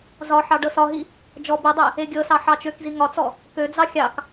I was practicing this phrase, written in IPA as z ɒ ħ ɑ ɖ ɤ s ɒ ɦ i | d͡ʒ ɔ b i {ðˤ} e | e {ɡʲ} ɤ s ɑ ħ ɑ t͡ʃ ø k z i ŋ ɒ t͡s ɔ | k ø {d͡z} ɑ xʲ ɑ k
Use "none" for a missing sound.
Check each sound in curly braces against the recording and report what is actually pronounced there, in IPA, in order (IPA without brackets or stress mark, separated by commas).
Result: dˤ, ɡʲ, d͡z